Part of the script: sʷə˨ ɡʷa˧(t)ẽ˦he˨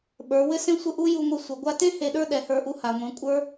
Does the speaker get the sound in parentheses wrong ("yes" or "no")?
no